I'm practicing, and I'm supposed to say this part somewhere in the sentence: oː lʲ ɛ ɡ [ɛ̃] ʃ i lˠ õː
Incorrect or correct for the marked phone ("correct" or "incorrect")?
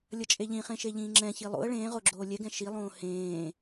correct